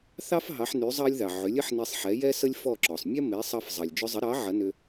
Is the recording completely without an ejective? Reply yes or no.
yes